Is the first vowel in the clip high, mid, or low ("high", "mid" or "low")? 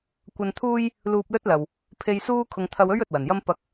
low